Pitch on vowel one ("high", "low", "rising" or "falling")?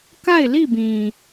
falling